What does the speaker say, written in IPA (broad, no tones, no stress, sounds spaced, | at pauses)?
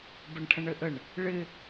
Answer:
b ə ɳ ʈʰ ə̃ ɳ ɘ ʔ ə ɳ | ɭ ɪ